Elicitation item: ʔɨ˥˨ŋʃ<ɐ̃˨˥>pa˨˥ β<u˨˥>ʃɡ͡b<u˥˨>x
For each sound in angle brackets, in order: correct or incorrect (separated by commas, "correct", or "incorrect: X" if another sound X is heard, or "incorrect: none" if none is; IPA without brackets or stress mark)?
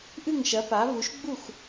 incorrect: ɐ˨˥, correct, correct